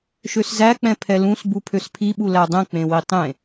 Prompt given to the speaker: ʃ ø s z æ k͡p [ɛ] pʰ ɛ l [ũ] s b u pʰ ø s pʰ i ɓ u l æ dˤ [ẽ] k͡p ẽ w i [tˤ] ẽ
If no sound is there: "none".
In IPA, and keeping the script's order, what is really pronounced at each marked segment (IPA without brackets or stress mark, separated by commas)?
ɛ̃, ũ, ɛ̃, tˤ